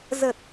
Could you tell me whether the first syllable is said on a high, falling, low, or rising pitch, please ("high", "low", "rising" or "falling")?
low